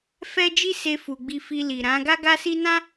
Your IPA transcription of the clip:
f ɛ˦ d͡ʒ i˦ s e˧ f u˨ ɡ͡b i˧ f i˧ l i˨ ɾ ã˨˦ ɡ a˦ ɡ a˦ s i˦ n ã˦

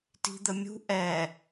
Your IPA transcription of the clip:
t i̤ d̪ ə mʲ ṳ ʔ ɛ

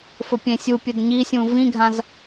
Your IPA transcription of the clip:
f ɵ pʲ ẽ sʲ u pʲ ɵ d ɲ i sʲ ũ v ĩ ɡʱ ã z

